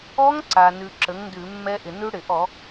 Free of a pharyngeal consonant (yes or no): yes